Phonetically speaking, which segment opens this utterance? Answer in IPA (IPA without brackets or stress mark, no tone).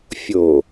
fʲ